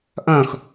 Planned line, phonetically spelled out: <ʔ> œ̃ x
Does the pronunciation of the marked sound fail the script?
no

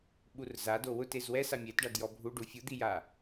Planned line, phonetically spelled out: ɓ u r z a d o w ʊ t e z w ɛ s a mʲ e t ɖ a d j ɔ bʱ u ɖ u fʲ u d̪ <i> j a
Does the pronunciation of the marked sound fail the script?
no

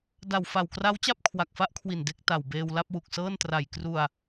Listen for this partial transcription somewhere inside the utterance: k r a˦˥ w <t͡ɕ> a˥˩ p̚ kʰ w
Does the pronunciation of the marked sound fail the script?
no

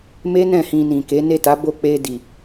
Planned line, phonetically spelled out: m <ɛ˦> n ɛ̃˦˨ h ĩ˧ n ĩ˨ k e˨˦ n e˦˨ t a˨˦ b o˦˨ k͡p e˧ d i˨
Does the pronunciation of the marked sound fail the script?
yes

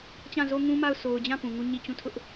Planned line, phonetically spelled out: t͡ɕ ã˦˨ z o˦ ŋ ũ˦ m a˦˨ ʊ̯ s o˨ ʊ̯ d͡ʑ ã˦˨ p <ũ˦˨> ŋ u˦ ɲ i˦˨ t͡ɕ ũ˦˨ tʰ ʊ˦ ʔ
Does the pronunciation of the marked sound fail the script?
yes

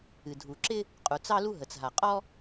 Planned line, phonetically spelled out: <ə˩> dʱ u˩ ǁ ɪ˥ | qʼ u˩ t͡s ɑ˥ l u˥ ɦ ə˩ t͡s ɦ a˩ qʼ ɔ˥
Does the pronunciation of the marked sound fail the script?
yes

